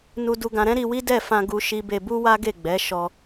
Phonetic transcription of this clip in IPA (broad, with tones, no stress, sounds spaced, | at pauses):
n u˧ d u˧ ɡ ã˧ ɾ ɛ̃˦ ɾ i˧ w i˦ d ɛ˦˨ f ã˧ ɡ u˦ ʃ i˦ b e˧ b u˦ w a˦ ɡ e˦˨ ɡ͡b ɛ˨˦ ʃ ɔ˧